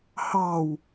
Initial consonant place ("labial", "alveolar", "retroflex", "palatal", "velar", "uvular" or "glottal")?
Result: glottal